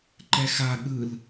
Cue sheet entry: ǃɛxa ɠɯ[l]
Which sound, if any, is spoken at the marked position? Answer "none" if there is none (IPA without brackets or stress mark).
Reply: l